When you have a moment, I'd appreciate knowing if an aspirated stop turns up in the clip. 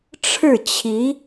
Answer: yes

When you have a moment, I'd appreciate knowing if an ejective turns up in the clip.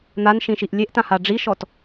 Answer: no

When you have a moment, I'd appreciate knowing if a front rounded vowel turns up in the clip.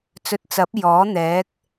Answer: no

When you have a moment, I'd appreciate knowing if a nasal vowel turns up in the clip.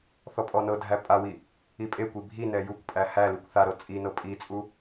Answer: no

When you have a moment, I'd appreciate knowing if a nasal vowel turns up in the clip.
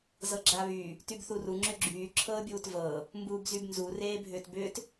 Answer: no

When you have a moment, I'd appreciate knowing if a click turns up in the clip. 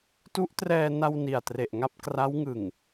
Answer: no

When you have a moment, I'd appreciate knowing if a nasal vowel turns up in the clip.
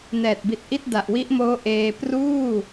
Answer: no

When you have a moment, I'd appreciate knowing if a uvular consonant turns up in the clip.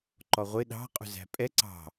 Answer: yes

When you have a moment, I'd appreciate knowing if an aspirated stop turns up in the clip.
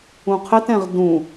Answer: yes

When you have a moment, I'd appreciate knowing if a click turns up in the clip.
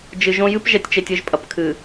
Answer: no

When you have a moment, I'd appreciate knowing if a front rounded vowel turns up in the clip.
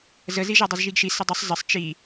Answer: no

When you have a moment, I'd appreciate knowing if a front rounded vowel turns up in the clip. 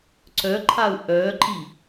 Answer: yes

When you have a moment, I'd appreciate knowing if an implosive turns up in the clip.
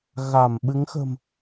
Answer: yes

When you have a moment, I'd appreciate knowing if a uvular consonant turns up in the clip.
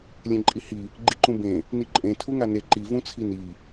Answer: no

